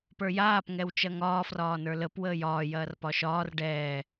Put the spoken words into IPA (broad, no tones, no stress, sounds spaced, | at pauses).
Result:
p ə˞ j aː p ŋ ɛ w t͡ʃ ɐ ŋ ɒː f r ɒː n ə˞ l ə p w əː j ɒː j ɐː r p ɒ ʃ ɒː r ɖ ɛː